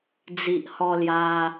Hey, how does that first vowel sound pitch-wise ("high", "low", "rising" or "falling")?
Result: low